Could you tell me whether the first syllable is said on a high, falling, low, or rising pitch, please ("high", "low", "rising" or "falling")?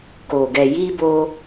low